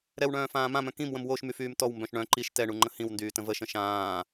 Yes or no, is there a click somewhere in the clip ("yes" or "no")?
yes